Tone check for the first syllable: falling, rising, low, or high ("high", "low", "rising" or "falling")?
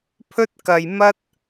high